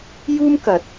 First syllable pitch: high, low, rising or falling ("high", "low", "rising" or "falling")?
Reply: high